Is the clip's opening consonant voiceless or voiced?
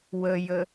voiced